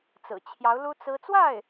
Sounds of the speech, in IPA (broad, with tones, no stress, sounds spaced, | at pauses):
t͡s ɹ̩˨˩ t͡ɕʰ j ɑ˧˥ ʊ̯ l u˥ t͡s ɹ̩˥ t͡s w a˥˩ ɪ̯